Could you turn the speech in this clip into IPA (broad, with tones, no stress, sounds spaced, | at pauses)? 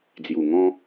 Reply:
d͡z j u˨˩ ŋ ɔ̃˧